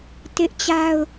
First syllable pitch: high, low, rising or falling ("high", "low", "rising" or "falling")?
high